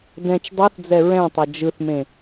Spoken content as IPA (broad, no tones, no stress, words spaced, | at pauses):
dɛ̃t͡ʃ dˤuθd͡zɛ ɹɛ̃tˤʌ d͡ʒɯθmẽ